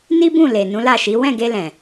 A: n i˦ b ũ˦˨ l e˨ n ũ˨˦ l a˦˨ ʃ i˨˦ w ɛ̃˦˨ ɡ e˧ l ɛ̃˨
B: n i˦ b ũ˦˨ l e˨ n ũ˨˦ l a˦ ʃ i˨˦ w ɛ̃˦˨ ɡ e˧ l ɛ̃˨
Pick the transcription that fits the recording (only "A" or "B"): A